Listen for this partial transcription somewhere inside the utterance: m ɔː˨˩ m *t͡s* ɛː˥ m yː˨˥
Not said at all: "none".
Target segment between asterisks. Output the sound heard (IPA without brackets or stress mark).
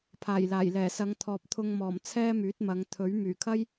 t͡sʰ